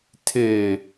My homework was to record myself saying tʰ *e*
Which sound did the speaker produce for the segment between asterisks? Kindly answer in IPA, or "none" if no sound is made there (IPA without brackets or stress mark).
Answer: e